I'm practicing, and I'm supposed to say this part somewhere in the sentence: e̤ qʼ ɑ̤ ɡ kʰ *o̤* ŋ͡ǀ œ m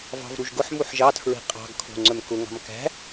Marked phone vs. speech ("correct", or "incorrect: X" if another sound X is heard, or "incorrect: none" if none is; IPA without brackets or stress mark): correct